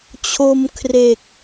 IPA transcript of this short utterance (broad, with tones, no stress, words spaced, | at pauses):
t͡ɕʰo˧m kʰre˨˩k̚